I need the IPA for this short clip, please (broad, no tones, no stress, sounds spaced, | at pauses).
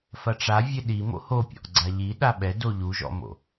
f ɐ ʈ͡ʂ a vʲ ɘ ɗ i m o̰ h o pʲ ɔ̰ ʔ ɡ͡ǀ a ʎ i ɗ a ɓ ɛ d o ʎ u ʒ ɔ̰ m o̰